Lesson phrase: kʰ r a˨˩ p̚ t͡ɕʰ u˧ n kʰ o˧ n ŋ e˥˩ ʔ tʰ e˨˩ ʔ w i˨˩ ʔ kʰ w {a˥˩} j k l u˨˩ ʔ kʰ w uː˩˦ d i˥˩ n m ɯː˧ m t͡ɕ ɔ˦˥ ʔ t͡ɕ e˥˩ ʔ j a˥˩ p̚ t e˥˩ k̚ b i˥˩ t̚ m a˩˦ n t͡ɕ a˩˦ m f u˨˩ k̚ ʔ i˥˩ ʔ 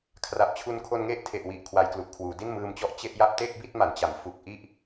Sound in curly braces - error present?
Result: yes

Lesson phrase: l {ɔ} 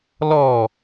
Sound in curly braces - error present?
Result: no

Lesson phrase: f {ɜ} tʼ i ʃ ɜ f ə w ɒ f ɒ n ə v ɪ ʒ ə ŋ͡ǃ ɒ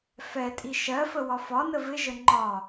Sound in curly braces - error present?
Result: yes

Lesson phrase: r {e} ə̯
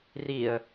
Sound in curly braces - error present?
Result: yes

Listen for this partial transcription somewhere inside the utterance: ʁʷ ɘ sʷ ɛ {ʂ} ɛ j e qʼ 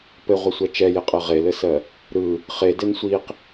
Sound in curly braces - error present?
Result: yes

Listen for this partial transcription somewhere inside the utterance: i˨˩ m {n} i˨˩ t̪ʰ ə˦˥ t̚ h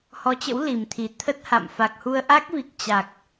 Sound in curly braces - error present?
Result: yes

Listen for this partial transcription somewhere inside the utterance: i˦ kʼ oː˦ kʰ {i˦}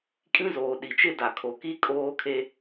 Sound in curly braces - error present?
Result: yes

